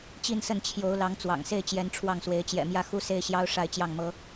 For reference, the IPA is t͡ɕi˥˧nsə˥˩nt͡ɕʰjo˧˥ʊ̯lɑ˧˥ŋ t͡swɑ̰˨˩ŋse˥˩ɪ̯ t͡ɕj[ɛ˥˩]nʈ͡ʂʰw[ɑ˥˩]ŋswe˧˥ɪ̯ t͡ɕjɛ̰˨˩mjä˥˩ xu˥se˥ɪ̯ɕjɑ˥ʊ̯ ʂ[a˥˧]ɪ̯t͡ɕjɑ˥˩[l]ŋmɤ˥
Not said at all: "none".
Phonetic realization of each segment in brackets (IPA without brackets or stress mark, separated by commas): ɛ˧˥, ɑ˥˩, a˥˧, none